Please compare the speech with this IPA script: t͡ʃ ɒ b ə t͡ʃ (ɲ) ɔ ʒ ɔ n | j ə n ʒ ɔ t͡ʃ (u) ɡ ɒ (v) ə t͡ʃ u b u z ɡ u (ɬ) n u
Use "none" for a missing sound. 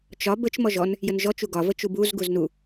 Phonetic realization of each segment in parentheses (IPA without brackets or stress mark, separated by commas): m, u, v, z